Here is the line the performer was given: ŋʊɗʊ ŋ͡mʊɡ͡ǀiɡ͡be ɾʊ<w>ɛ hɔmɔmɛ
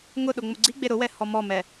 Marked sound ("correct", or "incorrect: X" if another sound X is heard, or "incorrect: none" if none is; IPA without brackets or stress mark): correct